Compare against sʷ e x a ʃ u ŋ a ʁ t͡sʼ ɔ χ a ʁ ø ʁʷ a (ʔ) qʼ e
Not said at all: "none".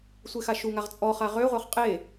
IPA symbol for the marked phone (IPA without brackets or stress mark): χ